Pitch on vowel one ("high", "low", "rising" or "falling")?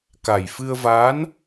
low